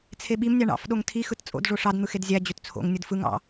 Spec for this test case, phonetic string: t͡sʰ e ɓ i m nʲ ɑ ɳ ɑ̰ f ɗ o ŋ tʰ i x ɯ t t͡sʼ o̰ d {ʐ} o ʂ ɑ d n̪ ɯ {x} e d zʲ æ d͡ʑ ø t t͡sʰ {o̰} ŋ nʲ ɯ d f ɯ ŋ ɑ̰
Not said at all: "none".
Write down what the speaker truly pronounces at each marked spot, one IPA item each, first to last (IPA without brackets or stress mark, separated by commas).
ʐ, x, o̰